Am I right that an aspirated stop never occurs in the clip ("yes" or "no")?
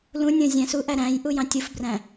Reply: yes